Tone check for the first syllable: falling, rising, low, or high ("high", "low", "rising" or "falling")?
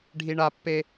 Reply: high